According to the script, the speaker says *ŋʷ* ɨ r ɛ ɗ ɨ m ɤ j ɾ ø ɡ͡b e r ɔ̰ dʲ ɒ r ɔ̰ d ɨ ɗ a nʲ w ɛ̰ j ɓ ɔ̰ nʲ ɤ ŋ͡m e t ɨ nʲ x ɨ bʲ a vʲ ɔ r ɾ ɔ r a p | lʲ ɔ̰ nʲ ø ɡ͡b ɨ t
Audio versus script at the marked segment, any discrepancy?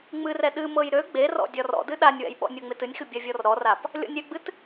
yes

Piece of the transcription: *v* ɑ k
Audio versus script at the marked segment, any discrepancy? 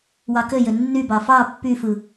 yes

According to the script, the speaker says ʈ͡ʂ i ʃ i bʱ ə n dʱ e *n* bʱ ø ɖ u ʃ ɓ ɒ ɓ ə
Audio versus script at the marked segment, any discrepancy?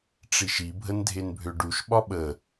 no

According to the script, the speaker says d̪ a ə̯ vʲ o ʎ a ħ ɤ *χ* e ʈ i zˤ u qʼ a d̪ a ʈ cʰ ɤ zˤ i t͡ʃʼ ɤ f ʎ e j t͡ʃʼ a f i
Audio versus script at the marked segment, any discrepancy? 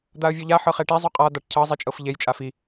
no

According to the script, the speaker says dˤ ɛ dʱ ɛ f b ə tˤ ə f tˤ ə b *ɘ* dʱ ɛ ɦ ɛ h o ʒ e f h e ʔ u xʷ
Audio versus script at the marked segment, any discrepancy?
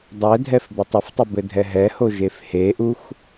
no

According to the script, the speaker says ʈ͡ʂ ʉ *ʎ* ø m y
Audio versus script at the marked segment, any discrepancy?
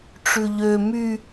no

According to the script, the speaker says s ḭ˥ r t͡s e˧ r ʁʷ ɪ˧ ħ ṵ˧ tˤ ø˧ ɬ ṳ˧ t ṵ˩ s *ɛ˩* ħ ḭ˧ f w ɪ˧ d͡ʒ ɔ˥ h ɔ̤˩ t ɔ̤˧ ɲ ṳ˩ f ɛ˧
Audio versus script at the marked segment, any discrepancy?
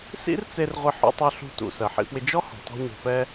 yes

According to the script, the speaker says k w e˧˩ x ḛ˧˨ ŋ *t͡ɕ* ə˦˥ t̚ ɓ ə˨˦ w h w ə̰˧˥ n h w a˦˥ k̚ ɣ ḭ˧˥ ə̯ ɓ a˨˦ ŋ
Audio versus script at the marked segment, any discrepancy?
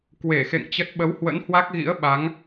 no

